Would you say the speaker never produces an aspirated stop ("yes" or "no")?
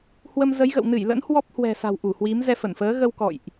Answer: yes